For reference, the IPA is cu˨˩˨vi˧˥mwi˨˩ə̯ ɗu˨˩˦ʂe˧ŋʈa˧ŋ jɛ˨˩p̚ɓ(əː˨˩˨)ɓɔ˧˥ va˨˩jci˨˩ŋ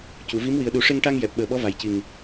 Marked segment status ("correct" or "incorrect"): incorrect